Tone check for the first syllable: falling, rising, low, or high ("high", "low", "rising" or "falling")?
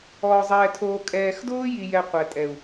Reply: low